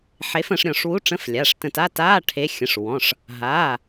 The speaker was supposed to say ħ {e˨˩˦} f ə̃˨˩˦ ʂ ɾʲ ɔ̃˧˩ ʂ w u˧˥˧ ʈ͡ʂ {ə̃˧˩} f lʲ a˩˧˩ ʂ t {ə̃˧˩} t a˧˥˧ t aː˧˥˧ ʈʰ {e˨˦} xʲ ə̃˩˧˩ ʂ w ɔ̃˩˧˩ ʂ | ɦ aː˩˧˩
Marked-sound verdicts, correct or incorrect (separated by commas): incorrect, incorrect, correct, correct